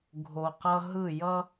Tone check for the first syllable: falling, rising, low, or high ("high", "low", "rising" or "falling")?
low